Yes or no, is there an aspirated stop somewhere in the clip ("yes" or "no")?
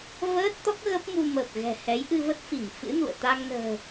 no